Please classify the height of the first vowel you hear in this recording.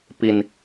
high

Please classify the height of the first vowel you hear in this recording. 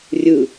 high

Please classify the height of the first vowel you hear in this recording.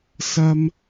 low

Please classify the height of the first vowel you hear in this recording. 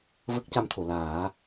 mid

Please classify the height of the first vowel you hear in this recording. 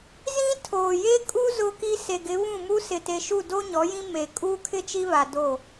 high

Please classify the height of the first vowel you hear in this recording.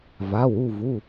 low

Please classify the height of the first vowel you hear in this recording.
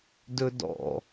mid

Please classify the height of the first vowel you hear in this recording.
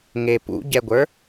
mid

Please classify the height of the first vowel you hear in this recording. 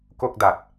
mid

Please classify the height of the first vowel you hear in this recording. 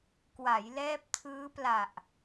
low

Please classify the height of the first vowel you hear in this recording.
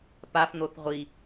low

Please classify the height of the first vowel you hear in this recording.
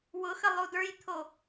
high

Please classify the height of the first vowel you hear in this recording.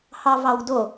low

